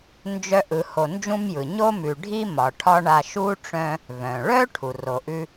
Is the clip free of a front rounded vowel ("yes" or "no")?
no